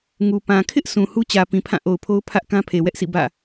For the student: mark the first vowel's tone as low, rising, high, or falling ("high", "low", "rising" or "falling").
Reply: low